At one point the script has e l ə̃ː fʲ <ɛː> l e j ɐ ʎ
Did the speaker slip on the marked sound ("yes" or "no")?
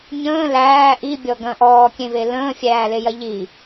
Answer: yes